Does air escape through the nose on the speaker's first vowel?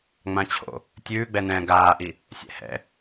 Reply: yes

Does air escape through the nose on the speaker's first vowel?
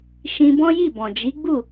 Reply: yes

